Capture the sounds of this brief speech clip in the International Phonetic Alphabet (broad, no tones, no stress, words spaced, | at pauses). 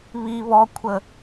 βi βɔkʷʰə